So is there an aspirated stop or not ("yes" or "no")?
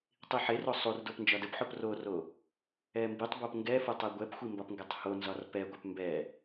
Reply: no